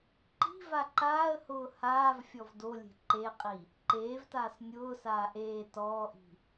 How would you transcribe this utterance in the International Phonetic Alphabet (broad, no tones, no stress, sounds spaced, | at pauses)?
ǃ i̤ v a ǃ aː ə̯ h ʊː h aː v fʲ ɔ v d o lʲ e̤ ǃ e qʼ i | ǃ eː v t aː s nʲ ʊː s aː ʔ eː t ɔː ʔ i̤